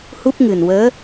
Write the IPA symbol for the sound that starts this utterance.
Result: h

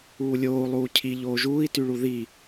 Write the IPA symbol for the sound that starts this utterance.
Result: uː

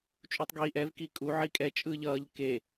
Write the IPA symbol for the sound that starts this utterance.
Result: t͡ʃʼ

